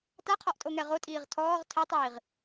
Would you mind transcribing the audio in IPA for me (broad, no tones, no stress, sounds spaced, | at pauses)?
t a qʰ ɒ ʔ tʼ o ŋ ɛ ʁ o tʼ iː ʁ tʰ ɔː ʁ tʰ ɛ tˤ iː ʁ